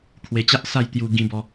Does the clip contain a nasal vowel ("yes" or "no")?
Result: yes